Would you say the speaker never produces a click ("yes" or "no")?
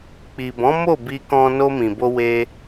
yes